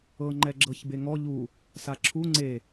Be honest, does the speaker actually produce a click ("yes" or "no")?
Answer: yes